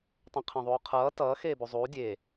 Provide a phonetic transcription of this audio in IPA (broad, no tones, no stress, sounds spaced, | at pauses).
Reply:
tˤ ũ qʰ ẽ ðˤ uː qʰ ʌː t ʌː x eː b u zˤ uː dʲ e